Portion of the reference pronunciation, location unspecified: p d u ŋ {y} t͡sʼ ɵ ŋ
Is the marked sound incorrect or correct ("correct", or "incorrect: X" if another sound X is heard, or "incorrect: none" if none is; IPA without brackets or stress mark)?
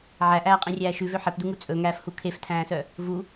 incorrect: u